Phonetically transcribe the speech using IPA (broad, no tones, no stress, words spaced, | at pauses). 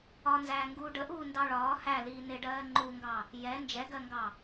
ɒnzæːŋɡuː ɖəʔuːndɑ ɭɒː hæliː nɪɖɜː ŋ͡ǃuŋɡɑ | jɛ nd͡ʒɛɡɜŋɡɑ